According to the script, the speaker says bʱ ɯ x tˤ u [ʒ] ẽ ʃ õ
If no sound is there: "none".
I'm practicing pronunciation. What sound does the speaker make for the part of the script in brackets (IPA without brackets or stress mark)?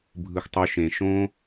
ʃ